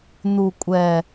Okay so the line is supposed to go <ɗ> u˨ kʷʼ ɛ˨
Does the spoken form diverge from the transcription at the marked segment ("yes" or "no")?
yes